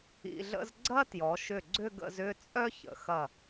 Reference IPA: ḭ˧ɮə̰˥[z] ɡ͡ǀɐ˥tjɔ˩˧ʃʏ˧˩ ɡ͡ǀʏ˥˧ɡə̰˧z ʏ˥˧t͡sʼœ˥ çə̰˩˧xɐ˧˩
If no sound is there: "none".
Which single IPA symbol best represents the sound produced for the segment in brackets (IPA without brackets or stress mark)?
z